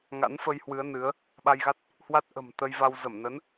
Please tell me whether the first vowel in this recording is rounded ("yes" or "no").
no